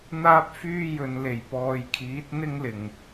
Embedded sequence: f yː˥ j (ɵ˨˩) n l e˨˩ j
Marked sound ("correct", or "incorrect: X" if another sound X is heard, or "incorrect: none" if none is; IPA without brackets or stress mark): incorrect: ɵ˨